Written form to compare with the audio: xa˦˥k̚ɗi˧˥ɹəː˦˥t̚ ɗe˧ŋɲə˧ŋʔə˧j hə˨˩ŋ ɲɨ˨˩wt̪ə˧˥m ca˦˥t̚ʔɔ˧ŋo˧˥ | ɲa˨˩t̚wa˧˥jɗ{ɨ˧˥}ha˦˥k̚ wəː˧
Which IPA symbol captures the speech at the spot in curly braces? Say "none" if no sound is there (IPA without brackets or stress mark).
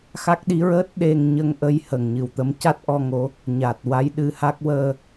ɨ˧˥